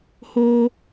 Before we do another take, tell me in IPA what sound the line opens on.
h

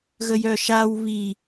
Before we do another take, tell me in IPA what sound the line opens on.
ɣ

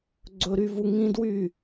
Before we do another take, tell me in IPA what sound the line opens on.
ɡ͡ǀ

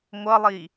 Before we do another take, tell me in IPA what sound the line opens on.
ŋʷ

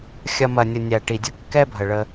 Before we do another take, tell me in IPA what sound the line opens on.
xʲ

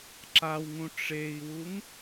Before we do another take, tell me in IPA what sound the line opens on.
ǁ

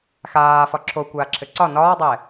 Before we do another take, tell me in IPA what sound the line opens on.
x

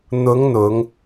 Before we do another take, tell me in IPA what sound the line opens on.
n̪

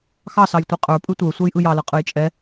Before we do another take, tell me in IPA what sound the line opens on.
x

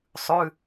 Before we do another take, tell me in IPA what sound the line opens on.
sˤ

